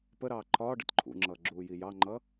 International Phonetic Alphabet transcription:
p ə ɾ ɑː ǃʰ ɒː ɖ ə̰ t ǃʰ ṵ ŋ͡ǁ ʌː ɡ͡ǁ uː j i j ɑ ŋ͡ǃ ʌ

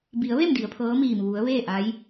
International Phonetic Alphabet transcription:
b i˩˧ ə̯ ʋ e˥˨ m d i˩˧ ə̯ pʰ ɤː˧˥ m iː˧˩ m ʋ u˩˧ ə̯ ʋ eː˥˨ ʔ a˧˥ j

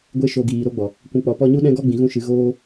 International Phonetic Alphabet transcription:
ɡʷ e˧ ʃ o˨ ɡ iː˨ ɾ o˦ ɡ͡b ɔ˨ | kʷ ũ˨ k͡p ɔ˨ p ɔ˧ ɲ u˦ ɗ ɛ̃˦ ɡ ɔ˦ ɡ͡b ĩ˨ ɣ ũ˧ ʃ ɨ˨˦ ɣ oː˦

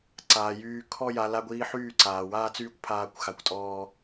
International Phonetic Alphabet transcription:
ǀ aː˨ j yː˧ kʰ ɔ˦ j a˧ l a˧ ɡʷ iː˧ ħ yː˦˨ ǀ aː˨ w aː˦ t͡s yː˦ kʷ pʰ aː˦ kʷ x a˧ kʷ tʼ ɔː˦

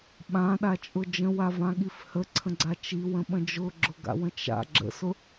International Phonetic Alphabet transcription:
ɓ ã ɗ a t͡ʃʼ ʊ d͡ʒ ə̃ w a v ã ɠ i f h ə ǀʰ ə̃ ɡ͡ǀ a t͡ʃ i w ə̃ ɓ ə̃ d͡ʒ ʊ ɡ͡ǁ ʊ ɡ a̰ w ə̃ t͡ʃ a̰ ɡ͡ǁ ə̰ s ʊ

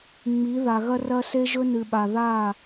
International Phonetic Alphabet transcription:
ŋ͡m i˨˦ ð a˨ ɣ ɐ˦ r ɐ˦ s e˦ ʒ ɵ˦ n ɨ˨ ɓ a˨ ð a˦˨

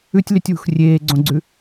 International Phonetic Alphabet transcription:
ʉ tʲ l y tʲ w ṳ x rʲ eː ɡ͡ǀ õ ɡ͡ǀ ʉ

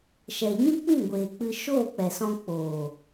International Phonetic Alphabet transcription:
ʃ ɛ˨ ɲ ĩ˦ k͡p ĩ˦˨ ɡʷ eː˨ k͡p ɨ˧ ʃ oː˦˨ k͡p ɛ˨ s ɔ̃˧ k͡p oː˨

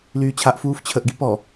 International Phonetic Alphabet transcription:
l yː t͡ɕʰ a ʔ f uː f t͡ɕʰ ə ʔ ɡ i p ɔ

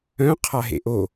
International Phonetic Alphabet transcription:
œ̃ qʰ a ɦ ḛ ʔ o

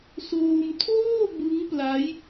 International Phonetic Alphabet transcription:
s oː˧ m tʰ oː˥˩ b ɯ˦˥ ŋ p l a˦˥ j

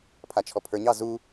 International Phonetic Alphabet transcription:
pʰ a t͡ʃʰ ɔ pʰ ə˞ ɲ ɑ z u

